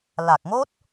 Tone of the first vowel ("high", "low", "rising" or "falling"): low